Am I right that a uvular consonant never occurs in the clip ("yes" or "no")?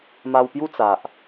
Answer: yes